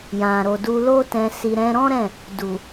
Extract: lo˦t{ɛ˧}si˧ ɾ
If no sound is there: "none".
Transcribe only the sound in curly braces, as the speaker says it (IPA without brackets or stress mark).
ɛ̃˧